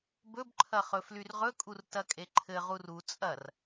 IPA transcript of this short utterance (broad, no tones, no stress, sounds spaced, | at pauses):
b ɵ b ǃʰ ɐ χ ɵ f l y r ʁ ɵ kʼ u r t ɐ kʼ e ǃʰ ɘ ʁ u r u t͡sʼ ɐ r